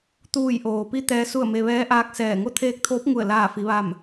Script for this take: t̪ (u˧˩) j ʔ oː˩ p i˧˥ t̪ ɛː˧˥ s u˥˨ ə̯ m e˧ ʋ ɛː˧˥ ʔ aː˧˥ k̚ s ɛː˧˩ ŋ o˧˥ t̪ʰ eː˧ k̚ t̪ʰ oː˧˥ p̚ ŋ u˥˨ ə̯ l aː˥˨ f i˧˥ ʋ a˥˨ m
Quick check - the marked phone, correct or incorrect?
incorrect: uː˧˩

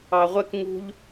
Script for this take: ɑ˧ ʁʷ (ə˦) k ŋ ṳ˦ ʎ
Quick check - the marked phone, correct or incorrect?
incorrect: ɛ˦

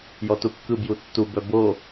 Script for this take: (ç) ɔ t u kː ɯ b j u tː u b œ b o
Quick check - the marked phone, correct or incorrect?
incorrect: j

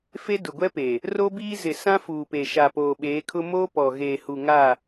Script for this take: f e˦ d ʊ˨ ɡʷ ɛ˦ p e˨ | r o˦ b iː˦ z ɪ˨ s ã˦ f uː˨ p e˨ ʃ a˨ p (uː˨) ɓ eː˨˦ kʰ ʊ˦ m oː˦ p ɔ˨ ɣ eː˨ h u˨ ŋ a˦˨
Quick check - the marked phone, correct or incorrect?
incorrect: oː˨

